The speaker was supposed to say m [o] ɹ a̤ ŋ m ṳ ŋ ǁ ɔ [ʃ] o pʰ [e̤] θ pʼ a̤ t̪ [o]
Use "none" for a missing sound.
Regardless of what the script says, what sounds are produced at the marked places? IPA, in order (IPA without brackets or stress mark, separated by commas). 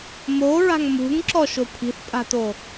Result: o, ʃ, i̤, o